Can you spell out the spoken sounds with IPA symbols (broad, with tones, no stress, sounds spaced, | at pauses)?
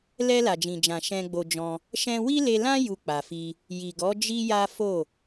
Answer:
l ɛ˧ l a˨ d͡ʒ ĩ˨ d͡ʒ ã˨ ʃ ɛ̃˧ ɡ͡b o˧ d͡ʒ ɔ̃˧ | ʃ ɛ̃˧ w i˦ l e˧ l ã˦ j u˧ k͡p a˨ f i˧ | j i˨ ɡ ɔ˨˦ d͡ʒ i˦ j a˦ f o˦˨